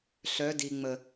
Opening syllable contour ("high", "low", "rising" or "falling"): rising